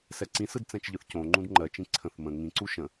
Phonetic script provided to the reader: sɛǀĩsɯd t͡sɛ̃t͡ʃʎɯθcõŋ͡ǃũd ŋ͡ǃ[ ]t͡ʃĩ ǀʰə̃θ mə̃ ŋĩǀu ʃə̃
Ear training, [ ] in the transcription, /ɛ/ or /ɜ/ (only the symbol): ɜ